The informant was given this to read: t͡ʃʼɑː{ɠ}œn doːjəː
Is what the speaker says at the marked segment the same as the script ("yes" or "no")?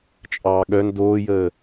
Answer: yes